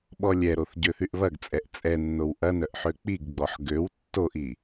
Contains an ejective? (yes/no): yes